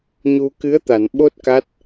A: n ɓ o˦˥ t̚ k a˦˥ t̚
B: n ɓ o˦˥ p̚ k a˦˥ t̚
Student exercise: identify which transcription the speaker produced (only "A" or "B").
A